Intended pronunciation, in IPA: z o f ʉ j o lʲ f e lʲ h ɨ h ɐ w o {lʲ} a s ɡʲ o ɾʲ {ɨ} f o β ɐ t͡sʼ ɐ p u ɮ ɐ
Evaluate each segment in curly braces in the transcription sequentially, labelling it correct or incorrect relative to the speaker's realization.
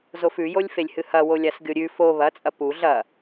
correct, incorrect: ʉ

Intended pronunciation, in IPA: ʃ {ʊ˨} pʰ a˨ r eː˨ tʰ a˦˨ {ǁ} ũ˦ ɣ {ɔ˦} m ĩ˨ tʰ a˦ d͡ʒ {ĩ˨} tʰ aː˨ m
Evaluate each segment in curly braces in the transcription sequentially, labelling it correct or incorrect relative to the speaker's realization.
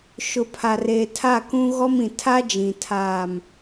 correct, incorrect: k, correct, correct

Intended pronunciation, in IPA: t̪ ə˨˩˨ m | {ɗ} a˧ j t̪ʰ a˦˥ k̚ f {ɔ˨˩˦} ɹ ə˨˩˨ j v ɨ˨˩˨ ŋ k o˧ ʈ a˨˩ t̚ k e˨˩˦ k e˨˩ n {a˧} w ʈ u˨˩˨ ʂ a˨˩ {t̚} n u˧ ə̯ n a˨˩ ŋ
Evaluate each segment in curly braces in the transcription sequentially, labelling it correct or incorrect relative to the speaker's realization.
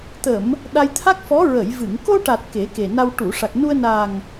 correct, incorrect: ɔ˧˥, correct, incorrect: k̚

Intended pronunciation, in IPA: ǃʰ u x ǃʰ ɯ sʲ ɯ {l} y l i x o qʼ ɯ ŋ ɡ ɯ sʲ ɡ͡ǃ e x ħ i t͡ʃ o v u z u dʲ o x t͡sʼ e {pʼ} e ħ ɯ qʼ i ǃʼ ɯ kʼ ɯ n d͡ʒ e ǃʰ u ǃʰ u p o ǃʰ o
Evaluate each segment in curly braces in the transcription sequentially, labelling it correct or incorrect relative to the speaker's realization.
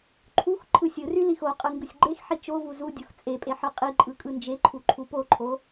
incorrect: r, correct

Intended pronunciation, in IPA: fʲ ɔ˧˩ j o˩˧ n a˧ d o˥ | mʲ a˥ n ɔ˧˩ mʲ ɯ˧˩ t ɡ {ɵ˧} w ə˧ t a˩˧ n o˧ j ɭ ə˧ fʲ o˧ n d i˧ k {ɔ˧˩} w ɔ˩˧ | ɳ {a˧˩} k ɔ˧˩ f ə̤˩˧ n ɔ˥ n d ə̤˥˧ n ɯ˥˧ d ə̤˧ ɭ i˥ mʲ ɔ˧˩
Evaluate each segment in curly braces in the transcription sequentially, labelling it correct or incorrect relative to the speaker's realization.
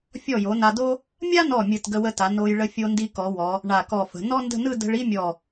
incorrect: ə˧, incorrect: ɔ˩˧, correct

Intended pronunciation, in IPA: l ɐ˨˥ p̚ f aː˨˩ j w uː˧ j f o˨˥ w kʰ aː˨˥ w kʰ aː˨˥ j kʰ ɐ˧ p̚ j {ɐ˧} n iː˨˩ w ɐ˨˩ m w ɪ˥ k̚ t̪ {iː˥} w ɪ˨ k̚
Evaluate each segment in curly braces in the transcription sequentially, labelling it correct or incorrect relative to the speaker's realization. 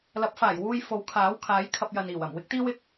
incorrect: ɐ˨, correct

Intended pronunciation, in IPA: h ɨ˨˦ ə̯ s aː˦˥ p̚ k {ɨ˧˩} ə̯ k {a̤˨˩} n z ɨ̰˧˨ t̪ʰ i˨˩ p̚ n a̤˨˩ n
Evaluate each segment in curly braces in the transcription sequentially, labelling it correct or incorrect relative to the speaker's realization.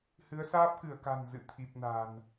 correct, correct

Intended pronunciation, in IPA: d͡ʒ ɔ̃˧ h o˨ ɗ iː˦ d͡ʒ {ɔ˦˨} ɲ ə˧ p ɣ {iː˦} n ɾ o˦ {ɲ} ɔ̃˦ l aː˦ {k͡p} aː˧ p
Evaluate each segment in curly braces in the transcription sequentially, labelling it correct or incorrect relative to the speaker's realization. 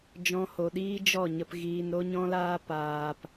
correct, incorrect: iː˧, correct, incorrect: p

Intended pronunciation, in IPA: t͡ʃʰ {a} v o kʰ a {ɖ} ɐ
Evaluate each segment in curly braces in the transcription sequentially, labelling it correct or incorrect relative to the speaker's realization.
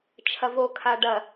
incorrect: ɐ, correct

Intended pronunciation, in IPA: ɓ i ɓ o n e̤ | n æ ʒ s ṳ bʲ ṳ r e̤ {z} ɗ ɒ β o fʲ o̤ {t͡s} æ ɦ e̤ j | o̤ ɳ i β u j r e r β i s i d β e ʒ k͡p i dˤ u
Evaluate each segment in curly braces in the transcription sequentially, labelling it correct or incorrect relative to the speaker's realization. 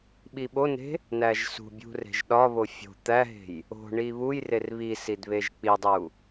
incorrect: ʒ, incorrect: t̪

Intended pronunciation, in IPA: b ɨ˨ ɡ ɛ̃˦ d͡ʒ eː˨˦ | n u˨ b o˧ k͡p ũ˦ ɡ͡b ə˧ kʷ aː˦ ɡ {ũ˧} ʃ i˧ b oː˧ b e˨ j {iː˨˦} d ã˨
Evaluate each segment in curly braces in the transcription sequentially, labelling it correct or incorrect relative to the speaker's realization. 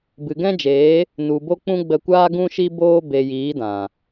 correct, correct

